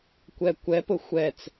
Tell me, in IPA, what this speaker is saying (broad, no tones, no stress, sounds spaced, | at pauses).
kʷ ɛ kʷ ɛ p ʊ xʷ ɛ t͡s